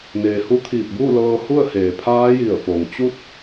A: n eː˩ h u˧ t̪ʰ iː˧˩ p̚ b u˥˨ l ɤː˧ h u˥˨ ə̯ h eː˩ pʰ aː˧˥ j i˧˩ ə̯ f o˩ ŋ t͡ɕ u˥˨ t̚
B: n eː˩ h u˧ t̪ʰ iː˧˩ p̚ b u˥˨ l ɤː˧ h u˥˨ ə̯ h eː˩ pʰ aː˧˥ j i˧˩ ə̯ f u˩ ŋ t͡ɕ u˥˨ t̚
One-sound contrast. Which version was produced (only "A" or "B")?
A